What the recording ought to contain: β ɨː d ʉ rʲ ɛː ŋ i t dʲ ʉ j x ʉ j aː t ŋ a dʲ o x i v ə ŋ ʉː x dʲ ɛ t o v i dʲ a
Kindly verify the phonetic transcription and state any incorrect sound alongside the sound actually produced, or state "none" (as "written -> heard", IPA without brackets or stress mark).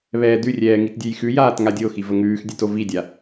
ɨː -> ɛː